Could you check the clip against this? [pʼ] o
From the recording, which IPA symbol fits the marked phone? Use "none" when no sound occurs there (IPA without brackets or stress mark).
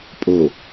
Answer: pʼ